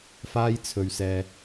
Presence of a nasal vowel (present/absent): absent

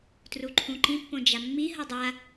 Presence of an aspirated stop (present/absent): present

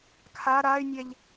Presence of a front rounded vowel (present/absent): present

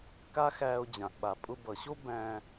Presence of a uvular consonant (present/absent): absent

